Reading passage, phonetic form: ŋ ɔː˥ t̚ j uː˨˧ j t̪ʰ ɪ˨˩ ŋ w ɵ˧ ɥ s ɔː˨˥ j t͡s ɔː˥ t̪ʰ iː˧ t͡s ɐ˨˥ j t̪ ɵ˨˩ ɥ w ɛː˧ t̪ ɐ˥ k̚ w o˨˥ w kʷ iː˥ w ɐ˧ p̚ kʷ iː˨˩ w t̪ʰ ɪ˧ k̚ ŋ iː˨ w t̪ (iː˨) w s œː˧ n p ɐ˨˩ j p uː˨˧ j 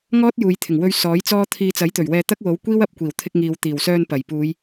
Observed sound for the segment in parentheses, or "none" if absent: iː˨˩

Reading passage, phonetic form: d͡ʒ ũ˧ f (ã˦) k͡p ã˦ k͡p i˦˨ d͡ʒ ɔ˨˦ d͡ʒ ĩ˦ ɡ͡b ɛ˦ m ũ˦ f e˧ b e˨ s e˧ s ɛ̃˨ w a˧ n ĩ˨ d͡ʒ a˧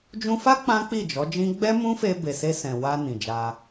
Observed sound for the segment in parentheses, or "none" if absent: a˦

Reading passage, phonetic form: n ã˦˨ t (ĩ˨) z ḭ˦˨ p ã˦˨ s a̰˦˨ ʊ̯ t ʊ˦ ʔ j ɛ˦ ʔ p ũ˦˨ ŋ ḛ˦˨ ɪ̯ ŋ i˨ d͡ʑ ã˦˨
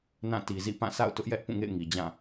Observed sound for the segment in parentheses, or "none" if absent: i˨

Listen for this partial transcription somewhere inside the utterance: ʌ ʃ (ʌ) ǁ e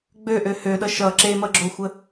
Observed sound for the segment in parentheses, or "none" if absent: ʌ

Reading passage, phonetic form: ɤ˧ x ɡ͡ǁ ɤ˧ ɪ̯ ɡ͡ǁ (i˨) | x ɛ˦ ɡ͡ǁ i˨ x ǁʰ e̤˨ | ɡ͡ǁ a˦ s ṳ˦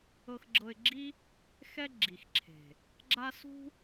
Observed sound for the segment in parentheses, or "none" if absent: i˦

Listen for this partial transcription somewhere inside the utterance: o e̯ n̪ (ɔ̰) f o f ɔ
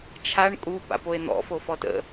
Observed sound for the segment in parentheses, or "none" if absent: ɔ̰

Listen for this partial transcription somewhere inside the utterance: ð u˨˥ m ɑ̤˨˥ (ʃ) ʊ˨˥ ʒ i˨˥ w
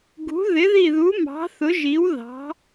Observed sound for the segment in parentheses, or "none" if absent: θ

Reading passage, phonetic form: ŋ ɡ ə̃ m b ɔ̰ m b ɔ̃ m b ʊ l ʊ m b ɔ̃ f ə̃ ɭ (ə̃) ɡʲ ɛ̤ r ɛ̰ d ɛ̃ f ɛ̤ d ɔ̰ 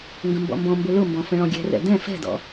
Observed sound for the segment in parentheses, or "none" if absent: ɔ̃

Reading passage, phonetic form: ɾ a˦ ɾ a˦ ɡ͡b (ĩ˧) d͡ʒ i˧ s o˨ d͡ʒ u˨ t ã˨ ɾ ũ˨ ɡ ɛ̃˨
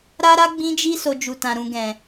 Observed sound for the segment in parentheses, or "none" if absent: ĩ˧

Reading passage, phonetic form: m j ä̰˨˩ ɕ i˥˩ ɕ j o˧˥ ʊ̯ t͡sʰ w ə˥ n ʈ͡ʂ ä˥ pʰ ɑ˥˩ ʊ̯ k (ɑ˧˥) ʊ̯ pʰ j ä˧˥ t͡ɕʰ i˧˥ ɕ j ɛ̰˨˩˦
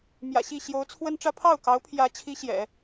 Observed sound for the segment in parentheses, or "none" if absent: ɑ˧˥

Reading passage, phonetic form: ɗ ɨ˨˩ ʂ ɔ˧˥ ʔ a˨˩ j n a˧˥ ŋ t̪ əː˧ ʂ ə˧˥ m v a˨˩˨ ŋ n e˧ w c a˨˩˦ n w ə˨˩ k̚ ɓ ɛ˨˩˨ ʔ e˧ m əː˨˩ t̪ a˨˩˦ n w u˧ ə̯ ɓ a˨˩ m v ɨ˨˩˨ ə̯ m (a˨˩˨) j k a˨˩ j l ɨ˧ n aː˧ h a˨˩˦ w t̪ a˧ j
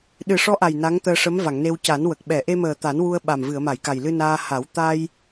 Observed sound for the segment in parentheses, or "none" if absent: a˨˩˨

